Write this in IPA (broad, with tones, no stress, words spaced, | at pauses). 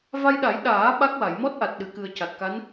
va˧jɗa˨˩˦jɗaː˨˩˦ ɓa˦˥k̚wa˨˩˨j mɔ˦˥t̚ʔa˨˩t̚ ɗɨ˨˩˨kɨ˨˩ə̯ ca˨˩t̚ka˧˥n